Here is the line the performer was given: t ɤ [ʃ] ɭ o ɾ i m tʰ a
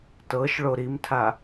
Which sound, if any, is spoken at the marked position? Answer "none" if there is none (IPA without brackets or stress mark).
ʃ